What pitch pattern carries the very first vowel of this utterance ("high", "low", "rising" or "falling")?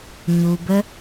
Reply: low